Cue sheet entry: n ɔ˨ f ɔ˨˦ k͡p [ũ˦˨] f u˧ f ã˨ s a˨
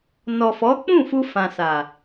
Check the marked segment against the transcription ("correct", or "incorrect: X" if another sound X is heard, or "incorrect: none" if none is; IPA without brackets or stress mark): correct